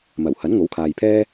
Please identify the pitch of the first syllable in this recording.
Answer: low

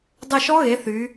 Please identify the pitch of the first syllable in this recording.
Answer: falling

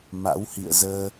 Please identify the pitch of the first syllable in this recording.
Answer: rising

